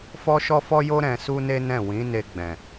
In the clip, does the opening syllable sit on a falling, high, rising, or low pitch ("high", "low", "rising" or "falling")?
high